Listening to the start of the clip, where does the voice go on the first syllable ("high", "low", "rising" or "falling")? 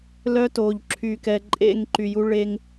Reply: high